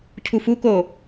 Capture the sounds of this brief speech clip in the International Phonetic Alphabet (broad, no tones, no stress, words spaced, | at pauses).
cʰufuko